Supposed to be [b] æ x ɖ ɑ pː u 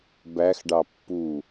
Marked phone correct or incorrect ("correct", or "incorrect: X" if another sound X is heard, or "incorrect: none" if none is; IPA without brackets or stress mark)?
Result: correct